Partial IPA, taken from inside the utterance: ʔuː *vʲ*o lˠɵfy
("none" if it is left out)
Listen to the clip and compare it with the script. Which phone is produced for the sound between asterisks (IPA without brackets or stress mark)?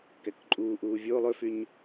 vʲ